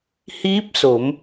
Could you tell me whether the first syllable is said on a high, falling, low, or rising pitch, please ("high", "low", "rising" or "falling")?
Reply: rising